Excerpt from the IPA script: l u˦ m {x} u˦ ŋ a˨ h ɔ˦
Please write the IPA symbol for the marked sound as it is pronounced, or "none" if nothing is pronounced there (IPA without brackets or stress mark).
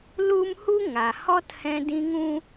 h